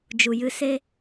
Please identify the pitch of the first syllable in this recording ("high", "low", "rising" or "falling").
low